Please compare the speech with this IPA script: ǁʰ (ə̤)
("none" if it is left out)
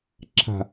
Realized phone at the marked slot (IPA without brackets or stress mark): a̤